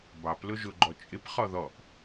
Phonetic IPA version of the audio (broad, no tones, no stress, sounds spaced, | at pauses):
b ɑ p l ʊ ʒ ʊ ɡ͡ǃ ɔ t͡ʃʼ ɪ p χ ɔ ð ɔ ʔ